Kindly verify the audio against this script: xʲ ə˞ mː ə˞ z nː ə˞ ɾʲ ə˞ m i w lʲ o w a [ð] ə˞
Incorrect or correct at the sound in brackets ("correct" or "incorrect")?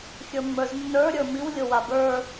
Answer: incorrect